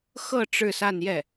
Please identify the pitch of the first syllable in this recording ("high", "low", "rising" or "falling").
falling